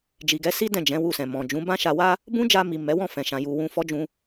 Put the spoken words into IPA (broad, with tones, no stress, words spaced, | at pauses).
d͡ʒi˨ɡɛ˨˦ si˦ dɛ̃˦˨d͡ʒɛ̃˨˦wu˧sɛ̃˨ mɔ̃˨d͡ʒũ˨˦ bã˦ʃa˧wa˦ | bũ˦d͡ʒa˧mi˨ mɛ˨˦wɔ̃˦˨fɛ̃˨ʃã˨ ju˧wũ˦ fɔ˦d͡ʒũ˧